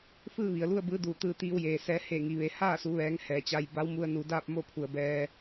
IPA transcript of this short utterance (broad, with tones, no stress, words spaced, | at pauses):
fɯː˥˨ʋi˩ə̯lu˥˨ə̯ bɯː˧˥duː˧˩t̪ɯː˧ t̪iː˧wjeː˩sɛː˧ he˧˩ŋi˩ʋe˩˧ haː˥˨su˩˧ʋɛː˩˧ŋ hɛː˩t͡ɕa˧j ba˧˥wmu˧ə̯nu˩˧daː˥˨p̚ mo˥˨pʰu˩ə̯bɛː˧